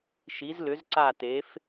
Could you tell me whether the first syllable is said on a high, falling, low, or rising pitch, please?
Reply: rising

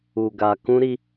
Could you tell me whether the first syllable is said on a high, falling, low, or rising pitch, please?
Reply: low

